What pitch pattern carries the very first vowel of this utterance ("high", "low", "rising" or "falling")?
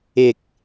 low